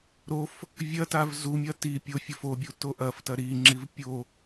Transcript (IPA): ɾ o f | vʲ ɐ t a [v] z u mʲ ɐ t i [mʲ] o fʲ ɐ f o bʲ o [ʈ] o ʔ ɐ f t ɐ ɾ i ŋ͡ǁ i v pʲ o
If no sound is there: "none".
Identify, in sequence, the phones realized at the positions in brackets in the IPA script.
v, pʲ, t

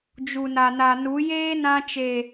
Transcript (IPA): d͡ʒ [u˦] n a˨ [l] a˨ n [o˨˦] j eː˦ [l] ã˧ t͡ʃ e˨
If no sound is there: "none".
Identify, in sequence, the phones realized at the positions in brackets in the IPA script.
u˨, n, u˨˦, n

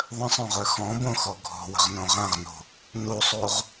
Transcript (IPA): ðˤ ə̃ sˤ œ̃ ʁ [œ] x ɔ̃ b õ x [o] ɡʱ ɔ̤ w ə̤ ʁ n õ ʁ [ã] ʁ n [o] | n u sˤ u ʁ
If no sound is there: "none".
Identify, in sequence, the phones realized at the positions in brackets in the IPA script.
œ, ɔ, ã, o̤

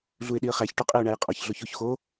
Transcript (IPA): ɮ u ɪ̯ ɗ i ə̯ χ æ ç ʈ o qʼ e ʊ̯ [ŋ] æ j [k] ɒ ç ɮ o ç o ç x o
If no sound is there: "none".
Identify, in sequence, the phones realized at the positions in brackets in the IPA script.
ɳ, qʼ

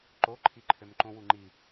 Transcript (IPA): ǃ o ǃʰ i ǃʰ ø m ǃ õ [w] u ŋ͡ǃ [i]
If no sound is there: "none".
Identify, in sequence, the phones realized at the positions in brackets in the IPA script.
w, i

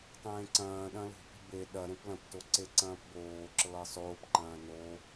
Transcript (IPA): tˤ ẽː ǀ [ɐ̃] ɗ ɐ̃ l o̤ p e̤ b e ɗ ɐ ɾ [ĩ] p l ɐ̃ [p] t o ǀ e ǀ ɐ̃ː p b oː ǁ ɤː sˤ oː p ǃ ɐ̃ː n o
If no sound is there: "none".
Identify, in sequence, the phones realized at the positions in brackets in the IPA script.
ɐ̃ː, ẽ, p

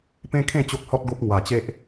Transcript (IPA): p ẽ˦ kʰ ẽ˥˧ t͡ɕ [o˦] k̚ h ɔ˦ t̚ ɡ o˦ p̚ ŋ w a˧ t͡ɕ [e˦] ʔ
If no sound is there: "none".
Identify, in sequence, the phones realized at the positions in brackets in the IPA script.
o˦, e˦

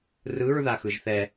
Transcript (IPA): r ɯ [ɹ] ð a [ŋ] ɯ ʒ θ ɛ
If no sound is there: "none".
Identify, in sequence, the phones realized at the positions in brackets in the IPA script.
ɹ, x

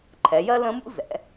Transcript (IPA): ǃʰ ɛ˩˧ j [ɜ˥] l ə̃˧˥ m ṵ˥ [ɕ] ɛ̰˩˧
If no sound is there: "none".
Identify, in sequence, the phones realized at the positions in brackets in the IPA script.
ɜ˥, z

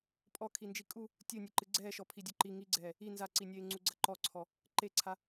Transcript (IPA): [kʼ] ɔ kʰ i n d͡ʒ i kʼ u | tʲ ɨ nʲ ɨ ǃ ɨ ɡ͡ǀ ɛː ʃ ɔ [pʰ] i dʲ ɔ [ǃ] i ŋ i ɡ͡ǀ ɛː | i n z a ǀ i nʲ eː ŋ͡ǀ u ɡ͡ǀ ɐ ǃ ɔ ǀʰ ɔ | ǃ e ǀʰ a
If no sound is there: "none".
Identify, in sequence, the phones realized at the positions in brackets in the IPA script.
pʼ, pʰ, ǃ

